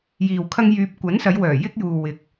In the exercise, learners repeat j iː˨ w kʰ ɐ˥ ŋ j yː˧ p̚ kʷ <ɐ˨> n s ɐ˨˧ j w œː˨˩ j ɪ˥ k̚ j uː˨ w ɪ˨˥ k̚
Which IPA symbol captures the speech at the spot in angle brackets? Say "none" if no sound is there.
ɐ˨˥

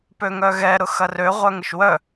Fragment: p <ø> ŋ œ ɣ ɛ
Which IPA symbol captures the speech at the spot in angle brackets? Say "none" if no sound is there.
ø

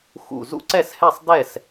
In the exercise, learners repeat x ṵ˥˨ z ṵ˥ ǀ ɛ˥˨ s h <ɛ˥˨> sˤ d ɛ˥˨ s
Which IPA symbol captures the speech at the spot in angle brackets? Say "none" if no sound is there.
ɛ˥˨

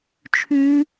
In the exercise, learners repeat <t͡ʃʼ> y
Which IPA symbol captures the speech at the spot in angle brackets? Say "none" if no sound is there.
t͡ʃʰ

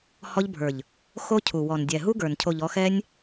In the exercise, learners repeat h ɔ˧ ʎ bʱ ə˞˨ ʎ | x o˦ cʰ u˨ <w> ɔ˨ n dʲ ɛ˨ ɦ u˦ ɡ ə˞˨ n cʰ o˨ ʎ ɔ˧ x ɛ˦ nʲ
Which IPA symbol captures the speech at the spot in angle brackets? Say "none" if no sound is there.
w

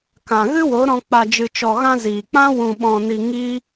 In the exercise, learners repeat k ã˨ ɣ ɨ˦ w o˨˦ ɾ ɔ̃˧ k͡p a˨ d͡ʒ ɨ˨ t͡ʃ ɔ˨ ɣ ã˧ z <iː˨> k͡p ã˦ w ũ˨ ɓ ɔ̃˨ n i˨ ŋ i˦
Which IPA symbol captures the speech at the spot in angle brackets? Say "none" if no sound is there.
iː˨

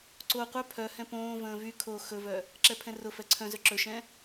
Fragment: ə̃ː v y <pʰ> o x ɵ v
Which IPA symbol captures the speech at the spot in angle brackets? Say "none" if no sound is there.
kʰ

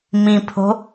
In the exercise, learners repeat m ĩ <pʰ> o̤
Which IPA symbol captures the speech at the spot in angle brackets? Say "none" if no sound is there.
pʰ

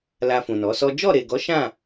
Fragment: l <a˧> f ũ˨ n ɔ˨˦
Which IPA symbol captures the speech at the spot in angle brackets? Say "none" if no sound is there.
a˧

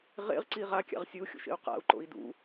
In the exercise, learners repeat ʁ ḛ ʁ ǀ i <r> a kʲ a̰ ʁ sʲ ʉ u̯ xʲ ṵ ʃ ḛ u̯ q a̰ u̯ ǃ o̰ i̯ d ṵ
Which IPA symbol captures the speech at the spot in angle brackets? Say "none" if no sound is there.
ʁ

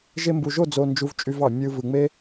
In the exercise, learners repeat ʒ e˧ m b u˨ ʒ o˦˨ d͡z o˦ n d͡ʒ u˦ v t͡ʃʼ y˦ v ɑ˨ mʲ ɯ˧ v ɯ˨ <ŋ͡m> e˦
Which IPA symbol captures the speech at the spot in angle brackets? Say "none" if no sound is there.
ŋ͡m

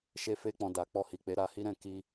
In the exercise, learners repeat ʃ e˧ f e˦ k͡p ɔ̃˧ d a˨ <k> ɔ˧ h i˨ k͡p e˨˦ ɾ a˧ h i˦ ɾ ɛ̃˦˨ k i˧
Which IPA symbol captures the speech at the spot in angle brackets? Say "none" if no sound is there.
k͡p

